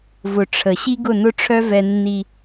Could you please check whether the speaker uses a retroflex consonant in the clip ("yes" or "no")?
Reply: yes